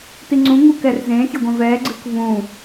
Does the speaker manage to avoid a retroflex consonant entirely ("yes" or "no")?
yes